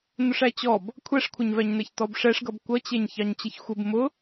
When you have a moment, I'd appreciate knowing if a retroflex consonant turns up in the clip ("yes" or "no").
yes